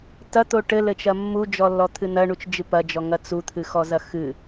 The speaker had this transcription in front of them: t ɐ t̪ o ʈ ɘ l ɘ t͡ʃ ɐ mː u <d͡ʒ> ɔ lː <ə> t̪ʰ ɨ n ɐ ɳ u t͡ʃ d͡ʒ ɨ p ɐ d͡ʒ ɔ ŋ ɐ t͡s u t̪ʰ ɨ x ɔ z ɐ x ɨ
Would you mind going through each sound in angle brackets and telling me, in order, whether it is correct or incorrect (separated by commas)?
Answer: correct, incorrect